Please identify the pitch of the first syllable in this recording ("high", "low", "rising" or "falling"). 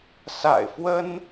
low